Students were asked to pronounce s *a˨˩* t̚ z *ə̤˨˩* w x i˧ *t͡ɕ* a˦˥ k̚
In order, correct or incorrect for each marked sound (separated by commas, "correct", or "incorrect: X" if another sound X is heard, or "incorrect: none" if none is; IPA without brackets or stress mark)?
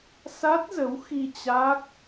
incorrect: a˦˥, incorrect: ə˨˦, correct